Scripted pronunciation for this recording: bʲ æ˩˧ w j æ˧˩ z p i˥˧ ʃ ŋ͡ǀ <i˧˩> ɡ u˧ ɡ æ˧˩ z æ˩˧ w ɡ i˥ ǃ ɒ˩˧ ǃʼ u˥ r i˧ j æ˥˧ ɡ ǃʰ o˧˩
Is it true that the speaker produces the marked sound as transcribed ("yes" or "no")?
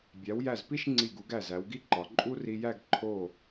yes